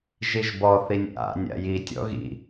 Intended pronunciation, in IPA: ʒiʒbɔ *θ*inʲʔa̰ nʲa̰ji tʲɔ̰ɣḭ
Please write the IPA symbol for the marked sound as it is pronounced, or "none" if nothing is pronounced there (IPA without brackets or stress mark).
θ